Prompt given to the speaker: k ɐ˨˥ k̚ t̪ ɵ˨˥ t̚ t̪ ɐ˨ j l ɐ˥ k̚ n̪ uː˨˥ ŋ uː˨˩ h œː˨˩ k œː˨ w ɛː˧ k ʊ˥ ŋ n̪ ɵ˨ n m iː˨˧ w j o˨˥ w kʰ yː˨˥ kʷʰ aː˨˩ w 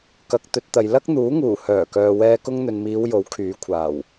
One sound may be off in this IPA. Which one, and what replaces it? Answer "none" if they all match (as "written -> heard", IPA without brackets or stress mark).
none